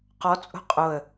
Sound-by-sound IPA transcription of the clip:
q ɔ t͡sʼ o̤ qʼ o ə̯

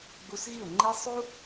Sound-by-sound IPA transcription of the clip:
ɡ͡b u˧ s ɣ i˦˨ ʊ̯ ŋ͡ǃ i˧ sˤ u˦

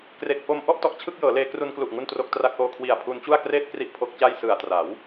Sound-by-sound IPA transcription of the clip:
k r e˨˩ k̚ f o˧ m ʔ ɔ˥˩ ʔ t ɔ˨˩ ʔ t͡ɕʰ ɯ˥˩ k̚ j ɤː˩˦ l eː˧ k r u˧ n k l u˨˩ ʔ ŋ u˥˩ n t r o˦˥ k̚ t r a˦˥ k̚ ʔ oː˧ kʰ w i˨˩ a̯ pʰ u˦˥ n t͡ɕ u˥˩ a̯ k r eː˥˩ t̚ k r i˦˥ ʔ pʰ o˦˥ k̚ t͡ɕ a˥˩ j s ɯ˨˩ a̯ t r a˩˦ w

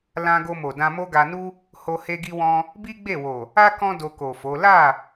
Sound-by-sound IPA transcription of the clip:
l ã˧ ɡ o˧ m o˨ d ã˧ m o˦ ɡ a˧ n u˦ | h o˧ h e˧ ɡ i˧ w ɔ̃˧ | b i˦ ɡ͡b e˦˨ w o˨ | a˦ k ɔ̃˦ d o˧ k o˨ f o˨˦ l a˦˨

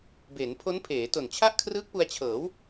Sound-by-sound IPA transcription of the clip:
b e˩˦ n pʰ o˦˥ n pʰ eː˩˦ t o˨˩ n t͡ɕʰ a˥˩ ʔ kʰ r ɯː˦˥ k̚ p u˧ a̯ t͡ɕʰ ɤː˩˦ w

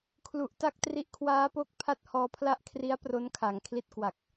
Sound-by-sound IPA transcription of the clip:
kʰ l u˨˩ ʔ t a˥˩ k̚ t r i˦˥ ʔ kʰ w aː˦˥ p o˦˥ k̚ pʰ a˦˥ t̚ h ɔː˧ pʰ l a˦˥ ʔ kʰ r i˦˥ a̯ p r o˦˥ n kʰ a˩˦ ŋ kʰ l i˦˥ t̚ k w a˨˩ k̚

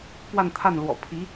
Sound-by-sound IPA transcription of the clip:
p w a˥˧ n t̪ʰ a˥˩ n l w ɔ̰˨˩ pʰ i˧˥

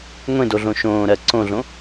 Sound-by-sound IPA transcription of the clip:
ŋʷ ẽ d o ɮ õ ʃ õː ɾ ɜ ǀ õ ɮ õ

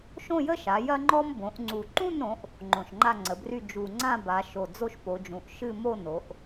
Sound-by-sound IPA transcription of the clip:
ʃ õ˥˧ j ə˥ ʃ a˩˧ j ɐ˥ ŋ͡ǃ ɔ˥ m b õ˩˧ ʔ ŋ͡ǀ u˨˩ ǃ ũ˥˧ n ɾ õ˩˧ ʔ | ŋ͡ǃ õ˨˩ ʃ ŋ͡ǃ a˥˧ ŋ͡ǀ ə˩˧ b r y˥˧ d͡ʒ u˨˩ ŋ͡ǀ ã˥˧ b a˩˧ ʃ o˨˩ d͡z o˥ ʃ p o˩˧ d͡ʒ ũ˩˧ ʔ ʃ ɨ˥˧ m o˥˧ n o˩˧ ʔ

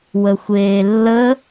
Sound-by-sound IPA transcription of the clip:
w ə xʷ eː lː ə

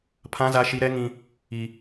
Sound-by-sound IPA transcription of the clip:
pʰ ã˦ z a˦ ʃ i˦ ɾ ɛ˦ ŋ ĩ˦ | i˦

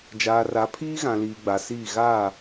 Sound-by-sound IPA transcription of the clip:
d͡ʒ aː˨ r a˨˦ pʰ iː˦ ɣ ã˨ l iː˨ ɡ͡b a˨ s iː˦˨ ɣ a˦˨

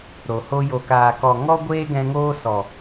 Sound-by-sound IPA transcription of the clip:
ɾ o˨ h o˧ j o˨ k aː˨ k ɔ˨ ŋ ɔ˦ ɡʷ eː˦ ɡ ɛ̃˧ ŋ oː˦ s ɔ˨

